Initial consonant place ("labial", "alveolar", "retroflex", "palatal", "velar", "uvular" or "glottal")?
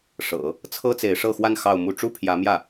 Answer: retroflex